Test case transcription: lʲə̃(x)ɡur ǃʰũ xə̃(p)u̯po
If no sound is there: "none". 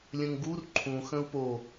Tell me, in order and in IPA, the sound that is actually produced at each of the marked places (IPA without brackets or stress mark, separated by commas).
ŋ, none